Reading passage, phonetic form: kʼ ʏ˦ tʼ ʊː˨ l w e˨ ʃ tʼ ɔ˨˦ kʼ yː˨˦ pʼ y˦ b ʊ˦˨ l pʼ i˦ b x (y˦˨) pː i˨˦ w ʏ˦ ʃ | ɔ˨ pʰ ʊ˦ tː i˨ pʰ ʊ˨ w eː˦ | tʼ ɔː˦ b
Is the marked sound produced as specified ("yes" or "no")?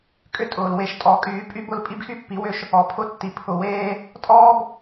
no